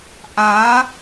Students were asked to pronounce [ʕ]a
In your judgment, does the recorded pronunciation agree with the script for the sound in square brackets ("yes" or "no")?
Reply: no